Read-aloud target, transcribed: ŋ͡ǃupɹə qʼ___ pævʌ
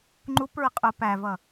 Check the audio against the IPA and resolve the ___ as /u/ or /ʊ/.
ʊ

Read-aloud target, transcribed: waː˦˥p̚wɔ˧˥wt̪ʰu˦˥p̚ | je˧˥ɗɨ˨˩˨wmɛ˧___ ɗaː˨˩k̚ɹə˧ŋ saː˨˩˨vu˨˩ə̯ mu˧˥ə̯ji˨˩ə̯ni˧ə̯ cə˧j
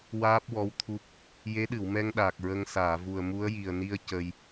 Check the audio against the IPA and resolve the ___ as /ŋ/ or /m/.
ŋ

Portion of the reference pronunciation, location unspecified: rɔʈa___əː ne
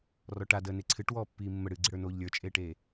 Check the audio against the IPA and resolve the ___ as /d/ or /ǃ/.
d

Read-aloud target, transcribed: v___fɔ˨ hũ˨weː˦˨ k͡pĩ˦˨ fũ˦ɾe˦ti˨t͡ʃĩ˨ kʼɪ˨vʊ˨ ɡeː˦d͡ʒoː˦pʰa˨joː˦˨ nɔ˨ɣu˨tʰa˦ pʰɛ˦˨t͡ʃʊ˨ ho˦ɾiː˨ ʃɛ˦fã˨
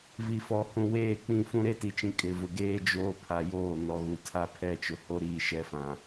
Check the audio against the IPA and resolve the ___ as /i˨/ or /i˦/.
i˨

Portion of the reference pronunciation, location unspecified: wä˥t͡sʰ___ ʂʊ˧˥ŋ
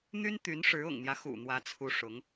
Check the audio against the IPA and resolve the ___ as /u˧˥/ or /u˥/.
u˥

